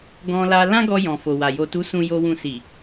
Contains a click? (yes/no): no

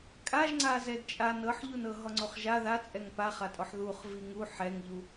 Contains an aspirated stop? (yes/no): no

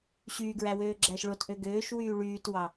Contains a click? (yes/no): yes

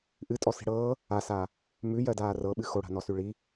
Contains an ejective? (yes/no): yes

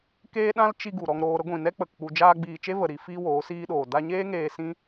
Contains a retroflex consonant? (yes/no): no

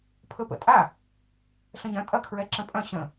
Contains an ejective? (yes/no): yes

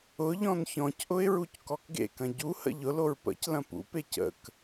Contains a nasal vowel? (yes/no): yes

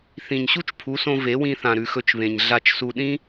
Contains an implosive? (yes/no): yes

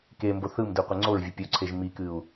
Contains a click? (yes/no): yes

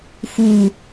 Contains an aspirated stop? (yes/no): no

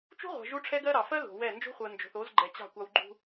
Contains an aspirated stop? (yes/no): yes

